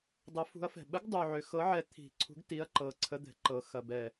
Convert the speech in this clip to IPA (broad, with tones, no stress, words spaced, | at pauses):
dˤə˨˥fṳ˨˥ɐ̯fɛ̤˨˩ ɓə˨˥ɡdˤu˨˩ʕʏ˨˩ xɤ˨˥ʕɛ˨˥ t̪ʰi̤˨˩ǀʰṳ˨˥ɡ ti˨˥ɐ̯ǃɤ˨˩ ǀʰə˨˥d̪ɛ̤˨˩ǃɤ˨˩ xɐ˨˩bɛ˨˩